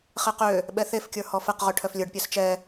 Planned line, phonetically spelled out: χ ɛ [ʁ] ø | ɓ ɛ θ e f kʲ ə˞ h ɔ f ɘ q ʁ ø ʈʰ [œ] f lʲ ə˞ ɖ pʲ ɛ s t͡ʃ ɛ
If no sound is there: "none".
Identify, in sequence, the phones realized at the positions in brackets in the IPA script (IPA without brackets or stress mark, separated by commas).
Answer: q, œ